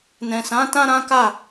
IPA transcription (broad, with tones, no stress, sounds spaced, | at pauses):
n ɛ̃˨ s ã˨˦ t ã˦ ɾ ã˦ k a˦˨